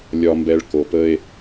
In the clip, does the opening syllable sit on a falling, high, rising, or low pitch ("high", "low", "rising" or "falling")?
low